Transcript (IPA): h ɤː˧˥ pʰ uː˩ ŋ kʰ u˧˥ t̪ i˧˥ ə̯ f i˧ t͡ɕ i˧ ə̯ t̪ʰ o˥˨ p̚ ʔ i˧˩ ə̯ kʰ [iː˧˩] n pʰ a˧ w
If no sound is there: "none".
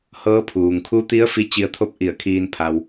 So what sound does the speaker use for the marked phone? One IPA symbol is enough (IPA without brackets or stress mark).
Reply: iː˧